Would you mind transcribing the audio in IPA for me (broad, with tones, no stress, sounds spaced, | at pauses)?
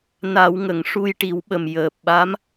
n a˨˩˦ w ŋ ə˨˩˨ ŋ ʂ u˧ j ʈ i˨˩˦ w ɓ ə˨˩ m j əː˨˩ p̚ ɓ a˧˥ m